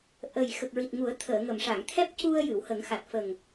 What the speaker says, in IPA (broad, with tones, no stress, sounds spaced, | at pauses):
ʔ ə˨˩ j x ə˨˩ k̚ ɹ i˨˩ t̚ ŋ u˨˩˦ ə̯ t̪ʰ əː˨˩˨ ŋ ə˨˩˨ m ʂ a˨˩˨ ŋ t̪ʰ ɛ˦˥ p̚ c u˧ ə̯ j ɨ˨˩˨ w h ə˨˩˦ ŋ x a˨˩ t̚ f ə˨˩ ŋ